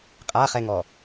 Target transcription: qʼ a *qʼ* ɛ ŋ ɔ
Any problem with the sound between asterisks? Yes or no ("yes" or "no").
yes